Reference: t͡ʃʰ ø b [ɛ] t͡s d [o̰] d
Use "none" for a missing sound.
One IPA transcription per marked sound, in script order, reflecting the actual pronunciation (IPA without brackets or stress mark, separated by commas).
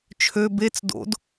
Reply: e, o̰